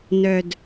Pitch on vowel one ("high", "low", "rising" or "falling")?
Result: low